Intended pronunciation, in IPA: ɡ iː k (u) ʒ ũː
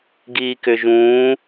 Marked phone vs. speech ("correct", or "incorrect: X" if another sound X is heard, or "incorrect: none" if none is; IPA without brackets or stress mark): incorrect: ʏ